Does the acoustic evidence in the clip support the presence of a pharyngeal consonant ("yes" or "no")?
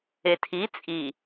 no